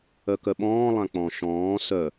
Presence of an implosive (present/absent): present